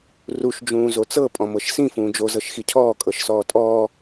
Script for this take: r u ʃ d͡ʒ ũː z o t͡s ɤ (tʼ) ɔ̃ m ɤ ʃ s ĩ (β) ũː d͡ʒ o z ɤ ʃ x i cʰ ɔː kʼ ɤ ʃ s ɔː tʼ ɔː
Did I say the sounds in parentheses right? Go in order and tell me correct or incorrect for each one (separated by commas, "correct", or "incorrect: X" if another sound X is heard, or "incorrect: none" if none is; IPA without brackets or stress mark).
incorrect: pʼ, incorrect: f